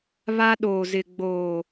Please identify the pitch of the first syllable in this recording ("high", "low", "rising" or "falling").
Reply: high